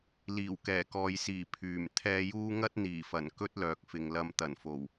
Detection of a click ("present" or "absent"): absent